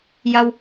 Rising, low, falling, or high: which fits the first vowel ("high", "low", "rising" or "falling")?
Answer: low